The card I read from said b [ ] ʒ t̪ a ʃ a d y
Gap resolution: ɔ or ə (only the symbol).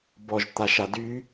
ɔ